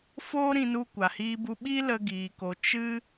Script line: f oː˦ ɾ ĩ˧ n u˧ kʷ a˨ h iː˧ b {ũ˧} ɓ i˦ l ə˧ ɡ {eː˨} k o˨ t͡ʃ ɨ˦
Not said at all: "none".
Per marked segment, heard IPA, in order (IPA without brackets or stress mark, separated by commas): u˧, iː˨